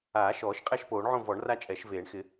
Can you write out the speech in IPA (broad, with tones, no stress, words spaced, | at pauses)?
aː˨˩˦ʃɔː˨˩˦ʃ qʼɛ˥˨ʃpoː˨˩˦ɳʕõ˥˨vɔ˨˩˦ɳ ra˥˨t͡ʃʼɛ˨˩˦ʃveː˨˩˦ɳ xɪ˨˩˦